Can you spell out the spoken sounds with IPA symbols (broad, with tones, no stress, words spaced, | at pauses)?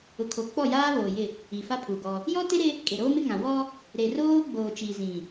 ʊ˨kʰo˨ k͡pɔ˦˨jaː˦βoː˨ jɪ˦˨ | i˨fa˦pʰu˨ɡɔ˦ | jɔ˦te˦ɾɪ˦ | kʼe˨ɾoː˦mɪ˦ŋã˨ wɔ˦ | ɾe˨ roː˦ ɡ͡boː˨t͡ʃi˨ zĩ˨